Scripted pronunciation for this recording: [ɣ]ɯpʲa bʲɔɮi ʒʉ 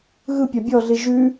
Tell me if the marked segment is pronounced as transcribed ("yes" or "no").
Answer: yes